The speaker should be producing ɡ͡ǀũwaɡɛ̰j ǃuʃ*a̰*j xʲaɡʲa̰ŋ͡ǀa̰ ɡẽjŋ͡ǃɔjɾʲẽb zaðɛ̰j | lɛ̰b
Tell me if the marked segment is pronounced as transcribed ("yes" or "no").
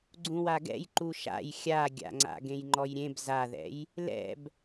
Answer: yes